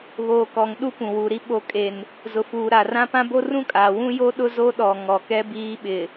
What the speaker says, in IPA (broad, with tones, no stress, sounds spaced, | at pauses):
β oː˨ k ɔ˨ ŋ ɗ u˦ p ũ˨ w u˨ ɾ i˦ ɓ o˨ kʼ e˨ n | z ʊ˨ f uː˨ ɾ a˨ r ã˦ p ã˦ b o˦ r ũ˦ kʼ aː˨ w ũ˦ j o˦ ɗ ʊ˦ z o˦ ɗ ɔ˨ ŋ ɔ˨ k ɛ˦ b iː˦ ɓ ɪ˨